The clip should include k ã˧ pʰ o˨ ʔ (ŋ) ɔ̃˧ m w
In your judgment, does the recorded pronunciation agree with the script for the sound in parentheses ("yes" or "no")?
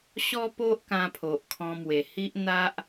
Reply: no